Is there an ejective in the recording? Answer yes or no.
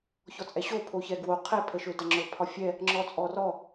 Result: yes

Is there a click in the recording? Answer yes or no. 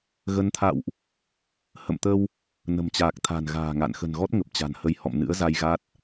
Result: no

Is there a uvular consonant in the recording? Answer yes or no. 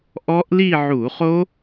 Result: yes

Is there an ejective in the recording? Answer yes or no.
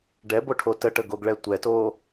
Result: no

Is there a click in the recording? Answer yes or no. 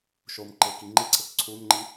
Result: yes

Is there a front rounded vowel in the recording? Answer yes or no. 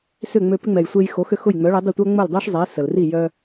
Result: yes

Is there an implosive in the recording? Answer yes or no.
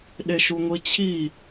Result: yes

